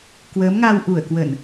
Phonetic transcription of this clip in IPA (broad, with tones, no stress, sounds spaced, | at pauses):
k w əː˨˦ m ŋ a˧ w ʔ u˧˩ ə̯ k w ə˧˩˨ n